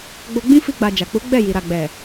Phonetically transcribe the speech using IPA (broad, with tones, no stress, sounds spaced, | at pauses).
ɡ͡b o˧ ɡ͡b ĩ˦ f i˧ ɡ͡b a˨ d͡ʒ a˨ k͡p u˨˦ ɡ͡b ɛ˦˨ j i˨ ɾ a˨ ɡ͡b ɛ˨